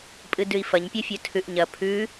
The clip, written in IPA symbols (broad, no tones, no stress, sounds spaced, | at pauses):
pʼ ɨ d ʉ i̯ f ɐ ɲ pʲ o fʲ ɵ tʰ ʉ ʔ ɲ ɐ pʰ ʉ